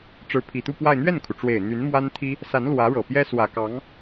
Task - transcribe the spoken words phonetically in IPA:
ʈ͡ʂ ɻ̩˧˥ pʰ i˨˩ t̪ u˥˧ p w a˥˧ ɪ̯ n̪ ɥ ɛ˥˩ n kʰ u˩ ʈ͡ʂ w e˨˩ ɪ̯ n̪ y˧˥ n m w a˥ n t̪ʰ i˥ | s a˧˥ n l w ä˧˥ ɻ ɤ˨˩ p j ɛ˥ s w ä˨˩ k ɑ˧˥ ŋ

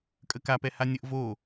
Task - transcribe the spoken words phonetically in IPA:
kʼ ə k a p ɛ h a nʲ ə ʔ v o

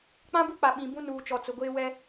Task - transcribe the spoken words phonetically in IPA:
k͡p ã˦ b u˦ k͡p a˨ ɓ ĩ˨ b ũ˦ n uː˨ t͡ʃ ɔ˨ t͡s ʊ˨ ɡʷ eː˦ w ɛ˦

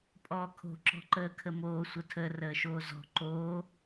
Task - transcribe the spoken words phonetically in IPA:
pʼ ɔː kʰ o̤ ǁ ɔ̤ ǃ əː kʰ ə m oː sʷ ə tʰ ə r əː ʃ oː z ɔ̤ ǃ oː

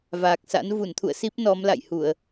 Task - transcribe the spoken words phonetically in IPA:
v aː˨˩ k̚ s a̰˧˥ n v u˧˩ n t̪ʰ ṵ˧˨ ə̯ s i˦˥ p̚ n ɔ˨˦ m l a̰˧˨ j h u˧˩˨ ə̯

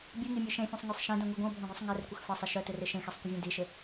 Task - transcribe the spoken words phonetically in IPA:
bʲ u ŋ i mʲ e ʃ ẽ fʲ ɛ̃ sˤ ŋʷ ɛ sˤ ʃ ẽ d ɛ̃ ŋʷ i ɡʷ ɛ̃ ʊ̯ bʱ ɛ̃ ɡʷ œ sˤ ŋ ɛ r kʷ ɪ x f ə sˤ ɪ ʃ œ t ɪ r ɪ ʃ ẽ x e sˤ kʷ ə vʲ ẽ d i ʃ ɪ

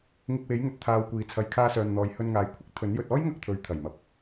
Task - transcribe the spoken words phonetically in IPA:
ŋ ɪ˧ k̚ w e˨˥ j ŋ ɵ˨ t̚ t̪ʰ aː˧ w kʷ iː˨ t͡sʰ ɐ˨˧ j kʰ aː˧ s œː˨ n n̪ ɔː˨ j h ɵ˧ n ŋ aː˨ j kʷʰ ɪ˥ k̚ t̪ʰ ɵ˨˥ n j ɵ˧ t̚ ɔː˥ j ŋ ɐ˧ k̚ t̪ʰ ɵ˨ ɥ t̪ʰ ɐ˨˩ j m ɐ˨ p̚

